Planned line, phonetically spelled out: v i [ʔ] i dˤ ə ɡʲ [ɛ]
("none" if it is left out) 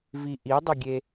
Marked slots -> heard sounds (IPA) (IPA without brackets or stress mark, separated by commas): ʔ, e